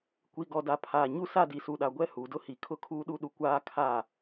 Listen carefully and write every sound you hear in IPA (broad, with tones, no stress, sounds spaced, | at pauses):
kʷ i˨ ɡ ɔ˨ d a˨ pʰ aː˨ ɲ u˦˨ s a˦˨ d i˨ s u˨ ɗ a˨ ɡʷ ɛ˦˨ h uː˨ d ʊ˦ h i˨ kʰ ʊ˦ kʰ uː˦ ɗ u˦ ɗ u˨ kʷ aː˦ kʰ a˦˨